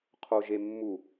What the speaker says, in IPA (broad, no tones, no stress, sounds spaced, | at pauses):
qʰ o ʒ e mː u